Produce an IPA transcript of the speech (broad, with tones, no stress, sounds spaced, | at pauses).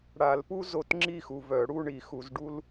ɽ a˨˩˦ l p u˥ z o˧˥ t ŋ͡ǁ i˥˨ x u˨ v œ˨˩˦ ɽ u˥˨ ɳ i˨˩˦ x u˨˩˦ z ɖ u˥ l